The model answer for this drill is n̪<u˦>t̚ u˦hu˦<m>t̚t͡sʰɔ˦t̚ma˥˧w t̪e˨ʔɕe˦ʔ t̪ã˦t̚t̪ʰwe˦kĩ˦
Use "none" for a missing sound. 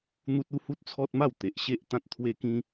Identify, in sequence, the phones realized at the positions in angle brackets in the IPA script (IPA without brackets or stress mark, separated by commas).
u˦, none